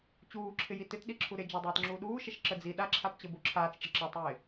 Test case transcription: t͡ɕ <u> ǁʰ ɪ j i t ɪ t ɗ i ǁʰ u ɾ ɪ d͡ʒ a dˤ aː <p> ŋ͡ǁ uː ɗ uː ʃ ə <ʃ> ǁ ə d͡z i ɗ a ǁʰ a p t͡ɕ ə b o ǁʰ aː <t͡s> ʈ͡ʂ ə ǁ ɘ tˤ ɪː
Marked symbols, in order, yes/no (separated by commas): no, no, yes, yes